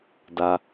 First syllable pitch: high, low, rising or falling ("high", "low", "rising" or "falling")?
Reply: low